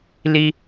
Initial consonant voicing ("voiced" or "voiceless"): voiced